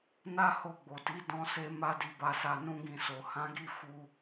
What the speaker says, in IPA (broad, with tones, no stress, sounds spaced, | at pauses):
n a˦ h o˧ ɡ͡b o˨ t i˨˦ d ɔ̃˦ s e˦ m a˦ d i˧ b a˧ s a˧ n ũ˦ ɡ ĩ˧ s o˨ h ã˨˦ ɡ i˦˨ f u˧